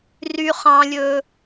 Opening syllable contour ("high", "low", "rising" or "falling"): high